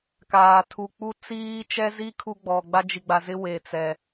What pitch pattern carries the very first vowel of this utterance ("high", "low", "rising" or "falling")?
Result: low